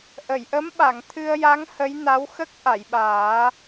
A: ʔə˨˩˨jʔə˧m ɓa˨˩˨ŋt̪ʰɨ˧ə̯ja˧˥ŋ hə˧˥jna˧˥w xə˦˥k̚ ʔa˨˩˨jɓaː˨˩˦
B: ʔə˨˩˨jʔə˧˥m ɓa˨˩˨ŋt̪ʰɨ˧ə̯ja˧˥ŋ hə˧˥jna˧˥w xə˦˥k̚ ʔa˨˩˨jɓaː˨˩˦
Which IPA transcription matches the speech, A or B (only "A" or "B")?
B